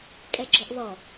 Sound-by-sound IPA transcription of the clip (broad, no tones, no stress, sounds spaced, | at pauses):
kʼ ɛ ɡ͡ǁ ɔ ʔ β ɔ